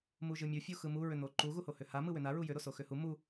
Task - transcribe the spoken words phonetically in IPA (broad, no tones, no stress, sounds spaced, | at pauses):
m u ʒ ɯ mʲ u fʲ u x ɯ m u ɹ ʏ n̪ o ǃ u ɣ u h o h ʏ h a m ɯ w ʏ n a ɹ u j ʏ ɾ o s o x ʏ h u m u